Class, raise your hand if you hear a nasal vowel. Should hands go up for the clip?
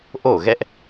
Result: no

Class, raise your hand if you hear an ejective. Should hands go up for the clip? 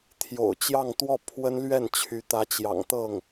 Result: no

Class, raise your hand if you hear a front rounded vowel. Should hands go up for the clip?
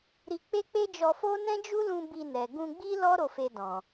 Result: no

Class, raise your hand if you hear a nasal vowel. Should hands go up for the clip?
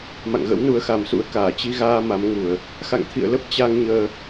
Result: no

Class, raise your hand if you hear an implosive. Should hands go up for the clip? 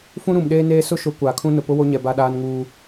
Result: yes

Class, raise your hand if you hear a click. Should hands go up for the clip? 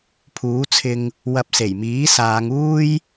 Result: no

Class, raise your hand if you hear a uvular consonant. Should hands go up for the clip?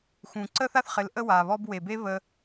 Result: yes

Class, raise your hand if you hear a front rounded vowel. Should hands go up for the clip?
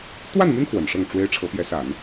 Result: yes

